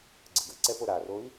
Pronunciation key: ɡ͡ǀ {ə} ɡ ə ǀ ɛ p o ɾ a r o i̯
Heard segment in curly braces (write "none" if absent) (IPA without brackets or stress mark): ə